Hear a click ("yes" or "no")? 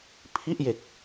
no